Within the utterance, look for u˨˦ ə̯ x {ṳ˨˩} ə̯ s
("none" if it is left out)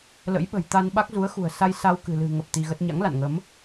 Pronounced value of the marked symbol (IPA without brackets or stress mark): ṳ˨˩